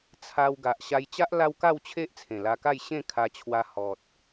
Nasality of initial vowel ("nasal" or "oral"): oral